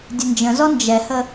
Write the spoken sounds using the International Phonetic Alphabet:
dʲ ə n d͡ʒ ə̃ z ɔ n d͡ʒ ɛ h ə

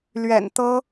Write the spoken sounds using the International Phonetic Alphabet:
l ɥ ɛ̰˨˩ n t̪ ɤ˥

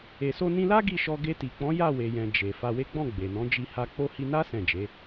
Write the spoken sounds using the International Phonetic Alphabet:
e˨ s o˧ n ĩ˧ l a˦ ɡ i˦˨ ʃ ɔ˧ ɡ e˧ t i˨ k͡p ɔ̃˨˦ j a˦˨ w e˨ j ɛ̃˨ d͡ʒ e˨ f a˧ w e˦ ɡ͡b ɔ̃˦˨ ɡ͡b e˨ n ɔ̃˨˦ d͡ʒ i˧ h a˧ k͡p o˦ h i˧ n a˦ s ɛ̃˦˨ d͡ʒ e˨˦

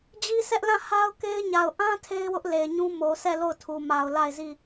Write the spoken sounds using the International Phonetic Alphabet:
d͡ʑ i˦ sʰ ɛ˦ ʔ l ã˦˨ h a˦ ʊ̯ k e˦ ɪ̯ ɲ a˨ ʊ̯ ʔ ã˦ tʰ e˦ ɪ̯ w ʊ˦ ʔ l e˨ ɪ̯ ɲ ũ˦ m o˨ sʰ ɛ˦˨ l o˦˨ ʊ̯ tʰ u˨ m a˨ ʊ̯ l a˦˨ ɪ̯ z i˦˨

